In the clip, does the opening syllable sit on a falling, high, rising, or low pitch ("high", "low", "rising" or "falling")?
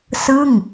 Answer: falling